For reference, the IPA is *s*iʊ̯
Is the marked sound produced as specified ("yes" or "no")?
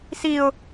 yes